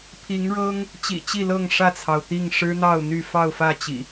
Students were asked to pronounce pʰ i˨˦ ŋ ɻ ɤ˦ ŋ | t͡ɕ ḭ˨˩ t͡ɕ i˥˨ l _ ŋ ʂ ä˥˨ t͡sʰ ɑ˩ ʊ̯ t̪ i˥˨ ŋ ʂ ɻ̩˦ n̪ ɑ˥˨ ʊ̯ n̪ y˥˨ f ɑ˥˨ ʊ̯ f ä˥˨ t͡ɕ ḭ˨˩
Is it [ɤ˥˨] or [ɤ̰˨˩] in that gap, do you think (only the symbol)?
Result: ɤ˥˨